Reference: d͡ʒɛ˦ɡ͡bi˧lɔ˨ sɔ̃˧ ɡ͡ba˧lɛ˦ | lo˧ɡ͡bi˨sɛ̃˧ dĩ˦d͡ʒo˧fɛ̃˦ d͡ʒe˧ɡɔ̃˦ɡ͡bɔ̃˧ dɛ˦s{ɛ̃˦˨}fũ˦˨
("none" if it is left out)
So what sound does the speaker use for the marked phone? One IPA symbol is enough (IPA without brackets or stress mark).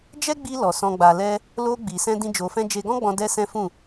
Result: ɛ̃˦